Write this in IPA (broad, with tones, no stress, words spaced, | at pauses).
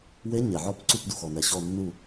we˧˥ɲe˩ʕɔ˦˨p ǀu˦˨pdu˩xɔ˩nɛ˩ ɕɔ˦˨nːu˦˨